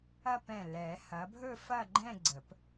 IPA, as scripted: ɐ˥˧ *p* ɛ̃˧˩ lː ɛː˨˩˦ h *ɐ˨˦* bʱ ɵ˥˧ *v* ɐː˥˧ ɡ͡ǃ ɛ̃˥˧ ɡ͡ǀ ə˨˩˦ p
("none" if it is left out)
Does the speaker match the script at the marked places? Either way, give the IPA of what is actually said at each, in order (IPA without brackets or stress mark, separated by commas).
p, ɐ˨˦, f